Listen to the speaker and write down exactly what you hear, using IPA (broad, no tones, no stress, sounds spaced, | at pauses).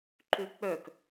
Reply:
ǃ ø k͡p œ k